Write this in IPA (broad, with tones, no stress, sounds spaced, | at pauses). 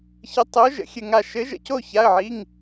ç ə˧˥ tˤ o˧˥ ʒ ə̰˧˥˧ xʲ ɘ˥˧ ŋ a˥˧ ʃ ɘ˧˥ ʒ ə̰˧˥˧ c o˥˧ ç a˧˥˧ ə̯ ʕ i˧˥˧ ŋ